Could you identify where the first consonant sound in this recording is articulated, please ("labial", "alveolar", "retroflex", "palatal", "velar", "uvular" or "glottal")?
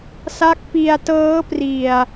alveolar